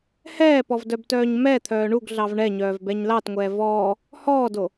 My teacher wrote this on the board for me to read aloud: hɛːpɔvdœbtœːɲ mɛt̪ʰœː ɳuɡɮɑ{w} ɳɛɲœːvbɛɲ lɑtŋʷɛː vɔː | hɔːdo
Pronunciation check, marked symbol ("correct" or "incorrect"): incorrect